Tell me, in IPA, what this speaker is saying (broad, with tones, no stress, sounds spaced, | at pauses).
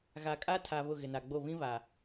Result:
ɣ a˨ kʼ a˦ tʰ a˨ β ʊ˦˨ ɣ ɪ˨ n a˨ ɡ͡b o˦˨ β ĩ˦ β a˨